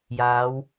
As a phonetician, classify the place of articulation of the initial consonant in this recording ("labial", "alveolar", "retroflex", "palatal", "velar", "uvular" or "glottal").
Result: palatal